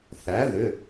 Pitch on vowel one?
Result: rising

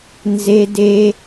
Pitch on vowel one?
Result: high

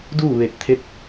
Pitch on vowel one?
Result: falling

